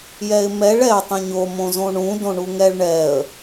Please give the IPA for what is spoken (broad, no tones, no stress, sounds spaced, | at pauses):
j ɛ ɪ̯ m ɛ ɭ ɛ tˤ ũ ɲ o m õ z õ ɳ ũ d õ ɳ u ŋ ɛ ɭ ɳ ɛ ə̯